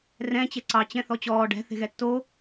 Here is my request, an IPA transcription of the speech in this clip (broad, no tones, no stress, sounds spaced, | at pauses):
r ɛ̃ t͡ɕ ɛ ǀ ɑ t͡ɕ ɛ̃ θ ɔ t͡ɕ ɔː ɖ ɛ̤ θ e̤ ɣ ɛ tː o